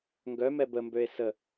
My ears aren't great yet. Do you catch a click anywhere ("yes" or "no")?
no